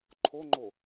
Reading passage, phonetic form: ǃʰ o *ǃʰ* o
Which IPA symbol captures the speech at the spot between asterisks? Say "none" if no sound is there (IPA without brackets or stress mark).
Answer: ŋ͡ǃ